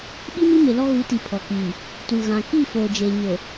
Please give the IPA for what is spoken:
ɓ i˦ m i˦ m ɪ˨ l ɔ˦ ɣ u˨˦ t i˨ pʰ ɔ˨ k iː˨ | t u˨ ɣ ã˨ k i˦˨ f oː˨ d͡ʒ eː˨ ɲ o˨

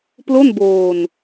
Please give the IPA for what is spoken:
p l o˥˩ n b oː˧ n

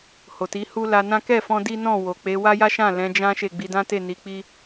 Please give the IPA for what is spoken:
h o˨ t i˨˦ h u˦ l a˧ n ã˦ k ɛ˦˨ f ɔ̃˧ d i˦ n ɔ̃˦˨ w o˨ k͡p e˨˦ w a˦ j a˦ ʃ ã˦˨ l ɛ̃˨˦ d͡ʒ ã˦ ʃ e˦˨ ɡ͡b i˨˦ d ã˦ t e˦˨ n i˨˦ k͡p i˦

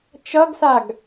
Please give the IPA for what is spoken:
t͡ʃ ʌ ɡ s a ɡ

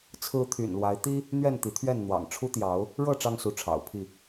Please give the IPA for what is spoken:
t͡sʰ ɹ̩˦ t̪ʰ y̰˨˩ n l w a˨˦ ɪ̯ t̪ i˦ | n̪ ɥ ɛ˥˨ n t̪ i˨˦ t̪ʰ ɥ ɛ˥˨ n n̪ w ɑ̰˨˩ ŋ ʈ͡ʂʰ u˦ t̪ j ɑ˨˦ ʊ̯ | ɻ ɤ˥˨ ʈ͡ʂ ɑ˦ ŋ s u˨˦ ʈ͡ʂʰ ɑ̰˨˩ ʊ̯ pʰ i˥˨

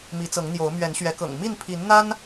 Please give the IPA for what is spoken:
m i˨˦ t͡s ɤ˨˦ ŋ n̪ j o˨˦ ʊ̯ m ɥ ɛ˨˦ n ɕ ɥ ɛ˨˦ k ɤ̰˨˩ ŋ m i˥˨ n pʰ i˨˦ n n̪ a˦ n

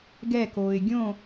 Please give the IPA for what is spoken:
ɡ ɛ k oː ɪ̯ ɡʲ õ

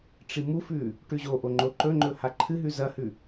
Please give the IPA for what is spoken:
ʈ͡ʂ i m u f ʉ | ʈ ʉ ʑ o ʔ o ŋ͡ǃ o ǃ ɵ ŋ͡ǃ ɵ h a ǃʰ ɨ ɦ ʉ z ɐ h ʉ

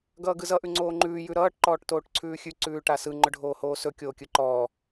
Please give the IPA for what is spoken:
ɡ ʌː ɡ ɯ z ʌ ʔ ʉ ŋ͡ǀ oː ŋ͡ǃ ʉː j ʉ ɾ ʌː ʈ ǃ ɔː ʈ t oː ʈ ǀʰ ʉː xʲ ʉ ǀ ʉː ʈ a s ɯ ŋ͡ǃ ɵ ɖʱ oː h oː s ɵ kʲ oː kʲ ɯ ǃ ɔː

